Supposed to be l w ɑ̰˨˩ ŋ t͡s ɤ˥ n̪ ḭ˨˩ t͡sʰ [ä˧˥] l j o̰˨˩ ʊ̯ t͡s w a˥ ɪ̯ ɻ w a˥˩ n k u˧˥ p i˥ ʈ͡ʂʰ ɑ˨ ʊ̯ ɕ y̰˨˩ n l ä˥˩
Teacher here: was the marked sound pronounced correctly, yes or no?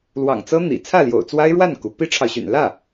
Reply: no